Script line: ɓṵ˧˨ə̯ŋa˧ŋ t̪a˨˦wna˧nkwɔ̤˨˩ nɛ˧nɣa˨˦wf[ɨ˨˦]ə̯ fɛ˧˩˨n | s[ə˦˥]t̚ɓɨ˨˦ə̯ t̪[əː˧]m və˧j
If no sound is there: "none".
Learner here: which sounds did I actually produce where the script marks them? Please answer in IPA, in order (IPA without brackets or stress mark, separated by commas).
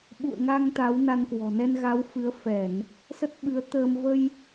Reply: ɨ˨˦, ə˦˥, əː˧